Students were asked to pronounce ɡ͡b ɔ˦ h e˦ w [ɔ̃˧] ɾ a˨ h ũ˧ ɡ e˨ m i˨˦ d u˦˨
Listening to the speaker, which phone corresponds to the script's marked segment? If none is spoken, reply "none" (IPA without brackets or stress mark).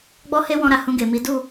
ɔ̃˧